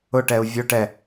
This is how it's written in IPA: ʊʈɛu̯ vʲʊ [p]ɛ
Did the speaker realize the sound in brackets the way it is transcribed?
no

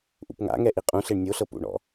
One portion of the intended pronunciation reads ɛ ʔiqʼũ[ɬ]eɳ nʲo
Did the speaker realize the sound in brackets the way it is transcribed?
yes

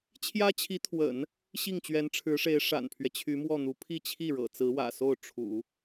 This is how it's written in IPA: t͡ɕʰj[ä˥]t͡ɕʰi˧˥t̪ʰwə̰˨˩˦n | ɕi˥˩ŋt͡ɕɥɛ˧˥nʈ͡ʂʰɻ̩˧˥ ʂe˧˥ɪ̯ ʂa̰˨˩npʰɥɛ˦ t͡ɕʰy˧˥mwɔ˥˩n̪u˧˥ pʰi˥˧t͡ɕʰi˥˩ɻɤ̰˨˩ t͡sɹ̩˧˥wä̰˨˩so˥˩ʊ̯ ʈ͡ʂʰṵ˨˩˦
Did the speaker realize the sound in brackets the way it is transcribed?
yes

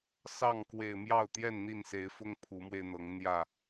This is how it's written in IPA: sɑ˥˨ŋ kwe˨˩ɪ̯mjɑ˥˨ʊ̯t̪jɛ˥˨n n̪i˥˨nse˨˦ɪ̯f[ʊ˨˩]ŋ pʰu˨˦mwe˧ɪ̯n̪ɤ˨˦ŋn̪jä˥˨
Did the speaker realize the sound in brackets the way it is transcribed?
no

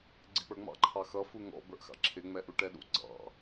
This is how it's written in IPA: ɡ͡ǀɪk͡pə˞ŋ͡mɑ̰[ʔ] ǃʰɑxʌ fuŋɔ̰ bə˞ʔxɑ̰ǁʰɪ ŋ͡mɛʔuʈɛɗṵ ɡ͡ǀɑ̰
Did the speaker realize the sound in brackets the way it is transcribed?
no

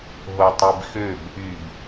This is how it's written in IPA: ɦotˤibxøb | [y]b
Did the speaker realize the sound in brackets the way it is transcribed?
yes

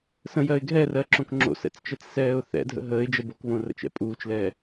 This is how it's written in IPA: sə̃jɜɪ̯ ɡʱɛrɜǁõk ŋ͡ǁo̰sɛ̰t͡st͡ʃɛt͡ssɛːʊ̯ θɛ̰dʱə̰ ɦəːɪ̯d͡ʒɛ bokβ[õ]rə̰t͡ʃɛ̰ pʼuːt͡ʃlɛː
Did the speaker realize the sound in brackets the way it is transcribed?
yes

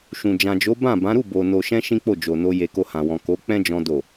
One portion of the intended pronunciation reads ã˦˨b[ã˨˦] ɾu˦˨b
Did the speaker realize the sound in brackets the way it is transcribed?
yes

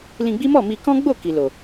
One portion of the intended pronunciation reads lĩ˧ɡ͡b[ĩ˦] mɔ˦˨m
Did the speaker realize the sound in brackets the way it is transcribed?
no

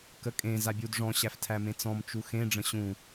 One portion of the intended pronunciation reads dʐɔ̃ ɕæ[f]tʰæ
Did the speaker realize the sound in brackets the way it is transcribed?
yes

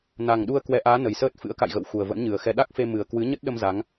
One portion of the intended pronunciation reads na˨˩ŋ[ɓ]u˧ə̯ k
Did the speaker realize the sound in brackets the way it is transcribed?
no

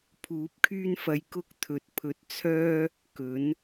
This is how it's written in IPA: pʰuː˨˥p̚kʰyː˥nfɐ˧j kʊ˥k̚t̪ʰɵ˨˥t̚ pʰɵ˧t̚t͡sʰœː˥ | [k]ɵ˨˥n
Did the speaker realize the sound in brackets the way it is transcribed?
yes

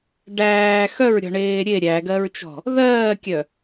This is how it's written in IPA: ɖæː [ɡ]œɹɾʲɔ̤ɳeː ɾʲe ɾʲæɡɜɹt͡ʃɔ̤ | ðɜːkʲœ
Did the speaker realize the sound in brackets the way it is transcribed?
no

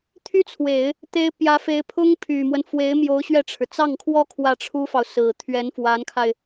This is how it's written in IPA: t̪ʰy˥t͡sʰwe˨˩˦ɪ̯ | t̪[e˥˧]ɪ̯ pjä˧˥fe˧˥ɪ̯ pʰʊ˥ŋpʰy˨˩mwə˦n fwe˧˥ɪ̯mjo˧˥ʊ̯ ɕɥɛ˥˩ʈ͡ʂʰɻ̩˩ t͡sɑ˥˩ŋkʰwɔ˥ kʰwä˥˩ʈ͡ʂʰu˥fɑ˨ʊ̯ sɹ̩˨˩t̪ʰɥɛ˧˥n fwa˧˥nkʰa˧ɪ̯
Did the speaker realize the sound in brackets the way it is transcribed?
no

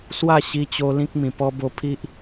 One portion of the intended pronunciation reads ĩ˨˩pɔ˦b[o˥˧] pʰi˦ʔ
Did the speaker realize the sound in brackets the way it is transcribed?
no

